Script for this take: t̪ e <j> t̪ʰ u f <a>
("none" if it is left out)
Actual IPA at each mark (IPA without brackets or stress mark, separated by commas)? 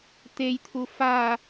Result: j, a